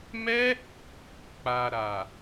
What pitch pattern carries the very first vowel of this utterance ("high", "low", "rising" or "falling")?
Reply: high